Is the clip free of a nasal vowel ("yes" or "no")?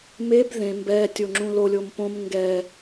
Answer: no